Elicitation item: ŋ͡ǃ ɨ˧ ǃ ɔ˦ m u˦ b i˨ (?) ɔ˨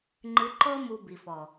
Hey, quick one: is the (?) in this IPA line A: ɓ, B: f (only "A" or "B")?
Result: B